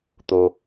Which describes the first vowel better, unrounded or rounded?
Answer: rounded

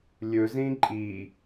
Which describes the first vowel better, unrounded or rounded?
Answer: rounded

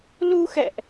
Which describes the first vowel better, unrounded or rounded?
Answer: rounded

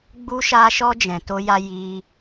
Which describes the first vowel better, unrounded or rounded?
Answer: rounded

